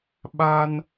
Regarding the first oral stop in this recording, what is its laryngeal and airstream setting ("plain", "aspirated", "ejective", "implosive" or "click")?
implosive